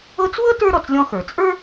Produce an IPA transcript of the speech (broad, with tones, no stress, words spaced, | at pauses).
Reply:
ɤ˦t͡swɤ˥ tə˞˥ɾɔ˩t͡slʲɔ̃˦xə˞˩ t͡sʼə˞˥